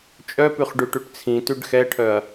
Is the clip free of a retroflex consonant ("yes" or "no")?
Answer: no